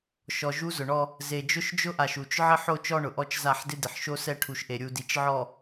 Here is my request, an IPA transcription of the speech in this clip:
ʃ ɔ˨ ʒ u˦ z ʊ˨ ɳ ɔ˦ | z e˨ d͡ʒ ʊ˦ ʃ d͡ʒ ʊ˦ ʔ a˨ ʃ u˨ t͡ʃ ʕ ɪ˦ ħ o˦ t͡ʃ ɔ˦ ɳ ʊ˨ ʔ ɔ˦ t͡ʃ z a˦˨ ħ d ɪ˦ d ɪ˨ ħ ʃ o˦ s ɛ˦ ʈʰ u˨ ʃ ʔ e˨ ɾʲ u˨ d i˨ t͡ʃ ʕ ɔ˨

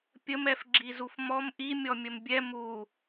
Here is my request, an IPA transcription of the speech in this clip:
pʲ ə m ɛ f ɡ͡ǁ i z u f m ɔ m ʔ i mʲ ɔ mʲ ə m bʲ ɛ m u

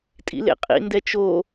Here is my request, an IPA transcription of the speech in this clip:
tʼ ḭ l ḛ qʼ ḭ n d ɛ t͡ʃ o

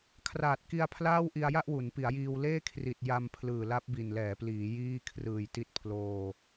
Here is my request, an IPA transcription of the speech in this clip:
kʰ r aː˨˩ t̚ k i˧ a̯ pʰ l aː˥˩ w ʔ i˧ a̯ j a˥˩ ʔ w u˩˦ n p i˩˦ a̯ j iː˧ w l eː˥˩ kʰ r i˨˩ t̚ j a˧ m pʰ l ɯː˨˩ l a˦˥ p̚ b i˨˩ n l ɛː˩˦ p l iː˩˦ j iː˥˩ kʰ r ɯː˨˩ j t i˦˥ t̚ pʰ l oː˧

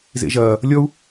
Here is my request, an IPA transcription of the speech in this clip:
z ḛ ʒ ɐː | lʲ ɔ u̯

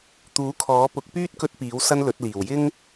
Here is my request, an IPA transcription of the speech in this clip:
t̪ uː˨˥ kʰ ɔː˨˥ p ʊ˨˥ k̚ p yː˥ t̚ k ɵ˧ t̚ p iː˨˥ w s ɐ˥ n l ɵ˨˥ t̚ l iː˨˩ w j ɪ˥ ŋ

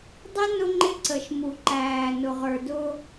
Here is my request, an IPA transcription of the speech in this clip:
dˤ ɪ˦ n ʊ˦ ŋ͡ǃ ɪ˦ ǀ ə˨ ʃ m u˨ ǃ æː˨ n ʊ˨ ʁ ə˞˨ d ʊː˦

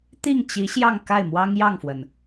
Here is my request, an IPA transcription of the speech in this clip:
t̪ i˥˩ ŋ t͡ɕ i˧˥ ɕ j ɑ˥˧ ŋ k a˥˩ ɪ̯ m w ɑ˥ ŋ j ɑ˥˩ ŋ f w ə˩ n

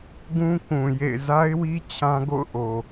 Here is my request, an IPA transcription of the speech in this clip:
ɡ ũ˦ k ũ˨ j ḛ˦˨ ɪ̯ z a˦ ɪ̯ w i˦ t͡ɕʰ ã˦ ɡ o̰˦˨ ʊ̯ ʔ o˨

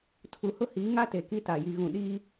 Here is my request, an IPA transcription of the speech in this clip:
tʰ u˨ h ʊ˦ h iː˨˦ ŋ a˦ t e˨ k i˦ t a˨ j i˨ ɣ ũ˨ ɗ iː˦

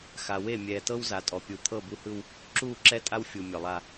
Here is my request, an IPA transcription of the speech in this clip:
x a˨ w e˦˨ mʲ ɛː˨ t ɤ˦ w z a˨ tʼ ɔ˨ pʲ u˨ t̪ʰ ɤ˦˨ b u˦ h ɯ˦ w | ǁ uː˦˨ ǁ ɛ˦ tʼ a˦ w fʲ u˨ mʲ ɔ˨ lˠ a˦

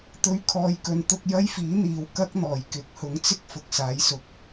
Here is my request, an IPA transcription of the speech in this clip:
t̪ ɵ˧ ɥ kʰ ɔː˨˧ j k ɵ˨ n t̪ ʊ˧ k̚ j ɐ˥ j f iː˨˥ n̪ iː˨ w k ɐ˥ k̚ n̪ ɔː˨˩ j k ɪ˨˥ k̚ h ʊ˨˥ ŋ t͡s ɪ˥ k̚ f ʊ˨ k̚ s aː˨˥ j s ʊ˨ k̚

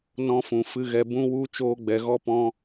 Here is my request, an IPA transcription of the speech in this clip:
n ɔ̃˧ f ũ˨ f ɨ˧ ɣ ɛ˧ b ũ˦ w u˦ t͡ʃ oː˧ ɡ͡b ɛ˨ ɣ ɔ˦ p ɔ̃˦

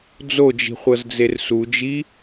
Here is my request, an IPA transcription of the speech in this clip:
d͡z o d͡ʒ i̤ χʷ ɤ z d͡z e r s u d͡ʒ i

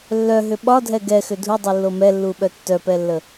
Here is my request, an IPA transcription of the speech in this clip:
lː œ ɦ ʏ ɓ ɒ dʱ ɛ ɡ ɛ x ʏ dʱ u dˤ u lː o m ɛ lː u ɓ œ tː œ p ɛ lː ə

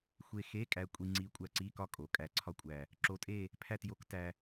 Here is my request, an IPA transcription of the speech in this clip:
xʷ e˧ x e˧˥˧ kʼ æ˧ kʷʼ i˧ ŋ͡ǀ i˧˥ kʷʼ æ˧ ǀ i˧˥˧ k ɒ˥˧ kʼ o˩˧ kʼ æ˨˩ ǀʰ ɒ˧˥ kʷʼ æ˨˩ | ǁ o˧˥ tʼ e˥˧ | pʰ æ˥˧ t j o˧˥ k t æ˧

